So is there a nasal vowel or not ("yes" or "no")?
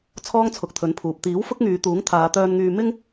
no